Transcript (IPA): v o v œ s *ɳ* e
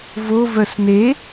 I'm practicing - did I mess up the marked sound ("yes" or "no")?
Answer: yes